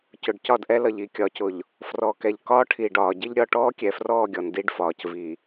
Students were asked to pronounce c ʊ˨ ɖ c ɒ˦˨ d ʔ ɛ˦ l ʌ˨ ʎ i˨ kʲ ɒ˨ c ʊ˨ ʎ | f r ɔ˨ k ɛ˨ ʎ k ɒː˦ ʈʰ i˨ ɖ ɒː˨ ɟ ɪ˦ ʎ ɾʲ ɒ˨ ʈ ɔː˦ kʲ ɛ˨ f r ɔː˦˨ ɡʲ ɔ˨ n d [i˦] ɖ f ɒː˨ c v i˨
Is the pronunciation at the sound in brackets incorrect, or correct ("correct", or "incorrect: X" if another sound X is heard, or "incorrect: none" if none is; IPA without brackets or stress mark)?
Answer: correct